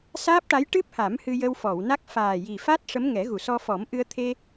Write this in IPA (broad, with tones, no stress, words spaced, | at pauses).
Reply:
saː˦˥p̚ʈa˧˥j ʈɨ˦˥p̚ha˨˩˦m hɨ˧jə˧wfɔ˨˩˨wna˦˥k̚ faː˨˩ji˨˩fa˦˥t̚ ʂə˧˥mŋɛ˨˩˦ɣu˨˩˨sɔ˧ fɔ˨˩˦mʔɨ˧ə̯t̪ʰe˧